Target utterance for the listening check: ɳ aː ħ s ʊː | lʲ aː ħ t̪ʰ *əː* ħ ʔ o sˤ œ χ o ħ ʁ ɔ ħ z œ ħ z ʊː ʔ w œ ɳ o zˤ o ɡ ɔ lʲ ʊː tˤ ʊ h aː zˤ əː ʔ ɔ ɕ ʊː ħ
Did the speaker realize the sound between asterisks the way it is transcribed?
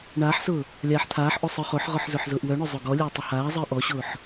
no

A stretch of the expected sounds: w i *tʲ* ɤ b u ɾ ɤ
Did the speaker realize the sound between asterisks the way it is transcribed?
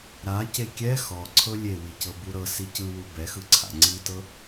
no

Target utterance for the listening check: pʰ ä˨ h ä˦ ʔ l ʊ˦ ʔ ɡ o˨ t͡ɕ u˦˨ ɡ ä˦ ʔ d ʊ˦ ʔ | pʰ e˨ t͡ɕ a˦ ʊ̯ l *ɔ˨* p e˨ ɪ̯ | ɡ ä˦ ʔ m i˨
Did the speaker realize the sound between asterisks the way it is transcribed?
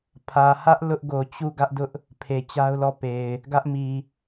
no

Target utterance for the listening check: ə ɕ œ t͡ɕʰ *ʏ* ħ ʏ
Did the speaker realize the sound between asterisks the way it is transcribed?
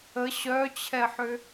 no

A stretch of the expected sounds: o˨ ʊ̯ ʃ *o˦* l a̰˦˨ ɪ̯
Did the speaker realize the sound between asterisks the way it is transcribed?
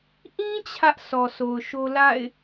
yes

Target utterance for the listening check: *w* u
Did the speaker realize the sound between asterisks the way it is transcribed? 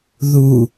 no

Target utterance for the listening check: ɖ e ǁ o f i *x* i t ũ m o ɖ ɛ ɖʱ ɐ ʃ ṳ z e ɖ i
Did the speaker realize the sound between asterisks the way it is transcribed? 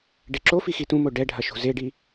yes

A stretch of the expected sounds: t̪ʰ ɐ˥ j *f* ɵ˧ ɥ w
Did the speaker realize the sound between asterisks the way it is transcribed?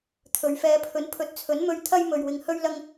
no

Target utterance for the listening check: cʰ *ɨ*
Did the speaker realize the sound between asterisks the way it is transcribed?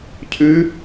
yes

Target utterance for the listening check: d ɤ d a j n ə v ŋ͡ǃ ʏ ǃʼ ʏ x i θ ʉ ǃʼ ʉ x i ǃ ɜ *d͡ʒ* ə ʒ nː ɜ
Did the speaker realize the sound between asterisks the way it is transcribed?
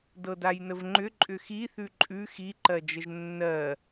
yes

